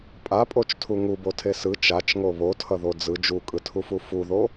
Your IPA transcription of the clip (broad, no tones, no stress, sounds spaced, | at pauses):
pʼ a pʼ o t͡ʃ tʰ u ŋ u b o tʰ e s ɯ t͡ʃ a t͡ʃ ŋ o β o tʰ ʌ ð o d͡z ɯ d͡ʒ u kʼ ɯ tʰ u f u f u ð o